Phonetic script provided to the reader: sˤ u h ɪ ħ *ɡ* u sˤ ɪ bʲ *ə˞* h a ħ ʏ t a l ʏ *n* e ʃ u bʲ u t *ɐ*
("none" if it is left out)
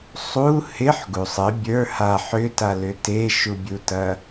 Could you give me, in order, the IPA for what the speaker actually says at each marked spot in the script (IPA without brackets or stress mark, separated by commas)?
ɡ, ə˞, t, ɐ